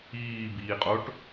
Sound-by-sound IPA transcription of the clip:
iː b iː qʼ o ʈ

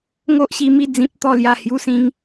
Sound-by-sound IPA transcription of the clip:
ŋ o˦ ʔ ɕ i˧ m i˥˧ d͡z ĩ˦ p̚ t̪ ɔ˥˧ l j a˥˧ h j u˦ s ĩ˦ ŋ

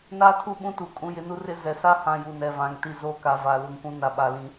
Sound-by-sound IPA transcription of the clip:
n a˦ tʰ u˦˨ ɓ ũ˦ t u˨ kʼ ũ˨ j ɪ˨ n u˦ r ɪ˦ z ɛ˨ s a˦ h ã˦ j u˨ n ɛ˨ v ã˨ ŋ t i˦˨ z oː˦ k a˨˦ v a˨ l u˨ ŋ kʷ ũ˦ n a˦ ɓ a˦˨ l ĩ˦

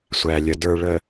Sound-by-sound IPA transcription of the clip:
sʷ æ˨ lʲ ə˨ d ə˞˨ ɭ ə˨

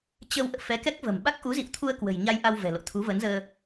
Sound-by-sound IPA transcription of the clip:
t͡ɕ ə˧ w ʔ ə̰ː˧˨ f ɛ˨˦ k ɛ˦˥ k̚ v ə̤˨˩ m ɓ a˦˥ k̚ ʔ u˨˦ z ḭ˧˨ w t̪ʰ u˧ ə̯ k w ə̤˨˩ j ɲ a˧ j ʔ a˧ w v ɛ̤˨˩ l o̰˧˨ t̪ʰ u˨˦ v ə˨˦ n z əː˧

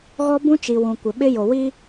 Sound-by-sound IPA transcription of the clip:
ɣ ɔ˦ b ũ˦ t͡ʃ i˨ w ũ˨ kʷ ɪ˨ ɓ ɪ˦ j o˨ w i˦

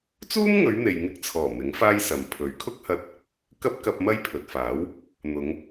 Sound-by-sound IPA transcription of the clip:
t͡s uː˥ m ŋ ɵ˨˧ ɥ n̪ e˨ j ŋ ɪ˧ k̚ t͡sʰ ɔː˨˩ m ɪ˨˥ ŋ f aː˥ j s ɐ˨ m pʰ ɵ˨˥ ɥ kʰ ʊ˥ k̚ h ɐ˧ t̚ | k ɐ˥ p̚ k ɐ˧ p̚ m ɐ˥ j pʰ ɵ˨ t̚ f aː˨˥ w | n̪ ʊ˨˧ ŋ

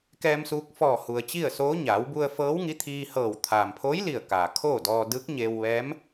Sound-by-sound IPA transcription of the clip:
k ɛː˧ m s uː˧ k̚ f ɔː˧˩ h u˩ ə̯ t͡ɕ i˥˨ ə̯ s oː˧˥ ɲ aː˩˧ w b u˧ ə̯ f ɤː˧˥ w ŋ i˧˥ t̪ʰ iː˧ h ɤː˧˩ w t̪ʰ aː˩ m pʰ oː˧˥ j l i˧˩ ə̯ k aː˩ kʰ oː˥˨ d ɔː˧ d ɯː˧˥ k̚ ɲ eː˧ w ʋ ɛː˧˥ m

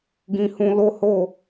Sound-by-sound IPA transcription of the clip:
ɡ ĩ˧ h ũ˧ l o˦ h o˦˨

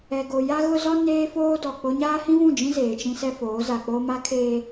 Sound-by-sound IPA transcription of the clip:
ɛ˨ ɡ o˨ j a˦ ɣ ʊ˦ z ɔ˦ n eː˦ f oː˦ d ɔ˨ k͡p o˦ ɲ aː˦ h ĩ˦ v ũ˦˨ d͡ʒ ĩ˦ z eː˨ t͡ʃ ĩ˦ s ɛ˦ f oː˨˦ z a˨ k͡p o˦ m a˦ kʰ eː˦

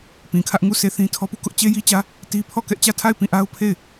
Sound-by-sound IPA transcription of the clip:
p ĩ˨ kʰ ä˦ ʔ ŋ u˦˨ sʰ e˦˨ θ ĩ˦ tʰ ɔ˦ p u˦˨ k ʊ˦ ʔ t͡ɕ e˦ j i˦ t͡ɕ ä˦ | t i˦ pʰ ɔ˦˨ k ɛ˦ ʔ t͡ɕ ä˦˨ tʰ a˦˨ ɪ̯ p ĩ˦˨ ʔ a˦ ʊ̯ pʰ e˦˨ ɪ̯

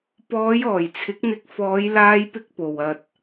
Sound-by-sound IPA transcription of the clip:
p ɔː˨˧ j ɔː˨˩ j t͡sʰ ɪ˨˥ k̚ n̪ ɪ˧ k̚ f ɔː˨˧ j l aː˧ j p ɪ˧ k̚ p o˨ w ɐ˧ t̚

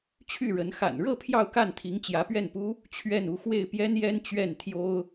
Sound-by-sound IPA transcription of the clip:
t͡ɕʰ y˥˩ ɻ ə˧˥ n x a̰˨˩ n ɻ ɤ˥˧ pʰ j ɑ˥˧ ʊ̯ k a˥˩ n t̪ʰ i˧˥ ŋ t͡ɕ j ä˧˥ p ɥ ɛ˥˩ n p u˥ | t͡ɕʰ ɥ ɛ˥˩ n u˥ x w e˥˩ ɪ̯ p j ɛ˥ n j ɛ˥ n t͡ɕ ɥ ɛ˥˩ n t̪ʰ j o˥ ʊ̯

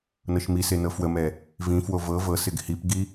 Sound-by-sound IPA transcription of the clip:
n ɤ ʃ m i s e n ɤ f w ə m ɛ | v ĩ f w o v ɤ v ɤ s ɪ ɡ h i p ɡ i

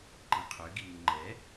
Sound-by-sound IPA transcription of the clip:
ǃ ĩ qʰ ø ɡ i m ɯ ŋ͡ǃ ɛ

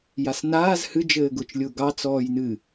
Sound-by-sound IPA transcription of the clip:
j a s n aː z h ɨ d͡ʒ ɘː ɡ ʊː t͡ʃ lʲ ʊː ɡ ɑ t͡s ɔː j n ɨ

